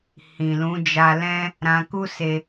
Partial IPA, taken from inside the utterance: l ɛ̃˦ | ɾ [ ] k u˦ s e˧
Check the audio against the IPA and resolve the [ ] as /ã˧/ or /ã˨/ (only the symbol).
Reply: ã˧